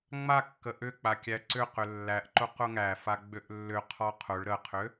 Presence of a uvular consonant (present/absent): present